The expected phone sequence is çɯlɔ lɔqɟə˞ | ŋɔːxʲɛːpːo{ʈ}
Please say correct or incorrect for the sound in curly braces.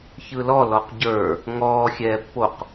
incorrect: q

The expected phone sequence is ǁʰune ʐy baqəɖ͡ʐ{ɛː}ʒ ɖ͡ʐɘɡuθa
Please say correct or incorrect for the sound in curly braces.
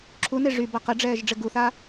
correct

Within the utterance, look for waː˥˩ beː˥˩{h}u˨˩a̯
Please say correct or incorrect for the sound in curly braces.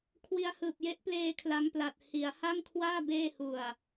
correct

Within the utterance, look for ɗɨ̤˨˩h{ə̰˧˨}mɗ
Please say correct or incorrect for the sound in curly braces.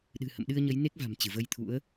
correct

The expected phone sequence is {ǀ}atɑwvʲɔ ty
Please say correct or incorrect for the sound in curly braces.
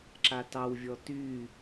incorrect: ǁ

